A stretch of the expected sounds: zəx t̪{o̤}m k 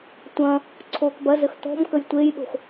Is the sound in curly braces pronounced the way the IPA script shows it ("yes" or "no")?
no